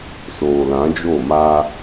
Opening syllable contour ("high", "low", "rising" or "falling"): low